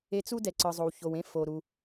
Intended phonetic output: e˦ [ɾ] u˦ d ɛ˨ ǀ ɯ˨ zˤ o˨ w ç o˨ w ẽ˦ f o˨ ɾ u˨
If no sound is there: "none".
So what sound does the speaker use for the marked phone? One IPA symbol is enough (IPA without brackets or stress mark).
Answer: t͡s